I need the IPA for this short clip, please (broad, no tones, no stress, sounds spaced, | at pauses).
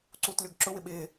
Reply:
ǀ uː t lʲ o ɡ ǁ ʊ w ɪ ɓ ɪː